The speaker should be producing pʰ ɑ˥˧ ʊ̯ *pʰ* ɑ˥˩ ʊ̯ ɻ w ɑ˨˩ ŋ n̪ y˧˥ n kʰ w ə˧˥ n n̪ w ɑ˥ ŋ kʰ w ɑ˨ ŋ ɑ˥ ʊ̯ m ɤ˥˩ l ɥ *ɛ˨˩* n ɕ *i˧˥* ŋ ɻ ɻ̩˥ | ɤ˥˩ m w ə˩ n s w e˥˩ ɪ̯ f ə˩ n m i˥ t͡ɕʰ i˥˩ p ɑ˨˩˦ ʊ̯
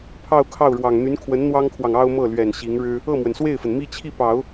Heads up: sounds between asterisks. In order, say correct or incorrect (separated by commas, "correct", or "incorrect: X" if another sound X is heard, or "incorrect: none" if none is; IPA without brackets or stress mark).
incorrect: kʰ, correct, correct